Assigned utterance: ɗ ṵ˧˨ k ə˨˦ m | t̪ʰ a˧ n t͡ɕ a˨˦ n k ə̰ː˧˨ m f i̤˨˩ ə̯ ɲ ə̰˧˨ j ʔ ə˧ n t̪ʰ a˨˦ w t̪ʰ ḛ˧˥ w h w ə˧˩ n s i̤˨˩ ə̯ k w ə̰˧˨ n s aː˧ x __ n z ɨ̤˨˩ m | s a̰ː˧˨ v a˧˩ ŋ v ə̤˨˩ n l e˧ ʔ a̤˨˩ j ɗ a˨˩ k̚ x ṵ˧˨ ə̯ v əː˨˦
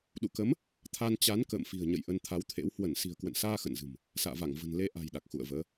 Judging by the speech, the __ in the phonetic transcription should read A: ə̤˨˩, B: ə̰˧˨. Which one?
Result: B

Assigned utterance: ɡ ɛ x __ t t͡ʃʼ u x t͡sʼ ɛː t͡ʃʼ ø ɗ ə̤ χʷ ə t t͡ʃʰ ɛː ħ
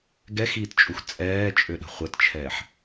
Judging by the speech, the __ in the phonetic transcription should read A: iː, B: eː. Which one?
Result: A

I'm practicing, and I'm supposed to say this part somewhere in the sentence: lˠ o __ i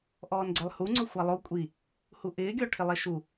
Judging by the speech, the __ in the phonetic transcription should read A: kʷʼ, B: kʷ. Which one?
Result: A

